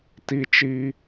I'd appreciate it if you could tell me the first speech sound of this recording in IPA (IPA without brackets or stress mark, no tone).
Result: t